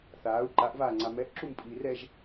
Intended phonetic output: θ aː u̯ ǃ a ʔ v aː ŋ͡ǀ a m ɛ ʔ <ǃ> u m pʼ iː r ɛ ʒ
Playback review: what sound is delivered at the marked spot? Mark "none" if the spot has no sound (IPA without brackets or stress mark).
ǁ